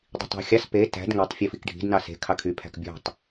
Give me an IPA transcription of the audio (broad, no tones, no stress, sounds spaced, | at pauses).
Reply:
dˤ i̤ tˤ æ̤ xʲ ɑ s p e t æ̤ d ŋ ø tˤ fʲ o f i k ɖʱ i̤ d n ɑ s e̤ kʰ ɑ kʰ y pʰ æ̤ k bʲ o̤ tˤ